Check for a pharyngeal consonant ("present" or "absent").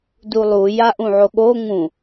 present